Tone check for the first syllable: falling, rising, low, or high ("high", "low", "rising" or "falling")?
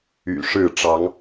low